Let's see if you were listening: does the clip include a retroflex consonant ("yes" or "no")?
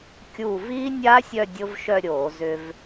no